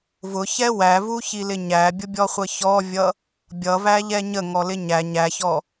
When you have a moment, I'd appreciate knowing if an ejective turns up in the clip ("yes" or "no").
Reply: no